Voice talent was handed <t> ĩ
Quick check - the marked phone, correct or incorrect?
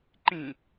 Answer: incorrect